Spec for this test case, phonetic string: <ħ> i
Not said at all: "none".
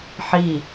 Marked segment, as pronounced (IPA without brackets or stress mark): ħ